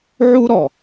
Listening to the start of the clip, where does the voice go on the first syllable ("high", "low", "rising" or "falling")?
high